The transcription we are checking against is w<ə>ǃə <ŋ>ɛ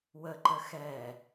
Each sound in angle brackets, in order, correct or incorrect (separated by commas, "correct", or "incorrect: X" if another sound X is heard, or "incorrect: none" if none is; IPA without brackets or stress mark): correct, incorrect: x